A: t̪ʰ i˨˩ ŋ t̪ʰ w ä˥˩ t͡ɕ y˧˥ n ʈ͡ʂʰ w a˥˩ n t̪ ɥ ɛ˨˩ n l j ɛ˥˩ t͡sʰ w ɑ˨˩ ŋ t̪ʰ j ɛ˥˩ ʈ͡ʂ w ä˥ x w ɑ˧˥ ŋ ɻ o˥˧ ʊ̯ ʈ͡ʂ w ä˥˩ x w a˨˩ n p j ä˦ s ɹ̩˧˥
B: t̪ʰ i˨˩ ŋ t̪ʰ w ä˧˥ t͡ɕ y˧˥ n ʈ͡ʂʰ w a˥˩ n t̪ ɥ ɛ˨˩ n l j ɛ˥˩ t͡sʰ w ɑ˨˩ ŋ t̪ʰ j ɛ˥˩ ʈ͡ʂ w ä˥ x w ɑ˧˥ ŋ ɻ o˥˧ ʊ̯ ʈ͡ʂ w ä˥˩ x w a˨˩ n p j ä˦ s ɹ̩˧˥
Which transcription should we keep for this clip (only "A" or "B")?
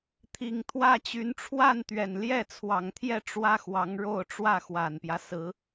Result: A